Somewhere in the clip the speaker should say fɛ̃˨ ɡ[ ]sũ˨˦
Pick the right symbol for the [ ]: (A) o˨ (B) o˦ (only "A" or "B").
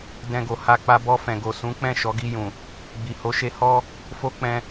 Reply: A